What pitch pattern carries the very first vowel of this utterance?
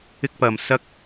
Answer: high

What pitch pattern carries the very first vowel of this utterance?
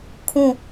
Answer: falling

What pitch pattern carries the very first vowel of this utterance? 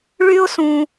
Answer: high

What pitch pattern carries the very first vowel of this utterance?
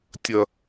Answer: high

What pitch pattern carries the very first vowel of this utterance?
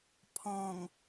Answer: low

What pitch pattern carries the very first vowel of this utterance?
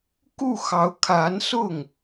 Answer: falling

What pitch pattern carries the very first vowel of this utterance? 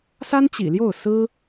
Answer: high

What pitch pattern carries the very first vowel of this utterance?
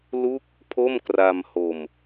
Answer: falling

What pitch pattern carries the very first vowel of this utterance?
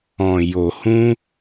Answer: low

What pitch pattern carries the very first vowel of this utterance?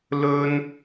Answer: high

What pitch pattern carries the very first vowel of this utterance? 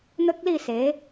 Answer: high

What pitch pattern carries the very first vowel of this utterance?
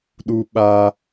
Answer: high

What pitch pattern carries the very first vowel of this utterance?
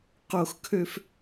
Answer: falling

